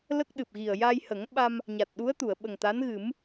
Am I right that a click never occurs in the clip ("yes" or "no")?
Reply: yes